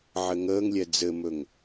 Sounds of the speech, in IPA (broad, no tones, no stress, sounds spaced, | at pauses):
ʕ ɘ ŋ əː ŋ lʲ ɛ d͡z ɘ m ɵ ŋ